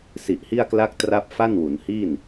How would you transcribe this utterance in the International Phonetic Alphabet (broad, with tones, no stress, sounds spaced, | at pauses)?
s i˨˩ ʔ h i˥˩ a̯ k l a˥˩ k̚ t r a˥˩ p̚ f a˥˩ n w u˩˦ n h iː˥˩ n